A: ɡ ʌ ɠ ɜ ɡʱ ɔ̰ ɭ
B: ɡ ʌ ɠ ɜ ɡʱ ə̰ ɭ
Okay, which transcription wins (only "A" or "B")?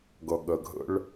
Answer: B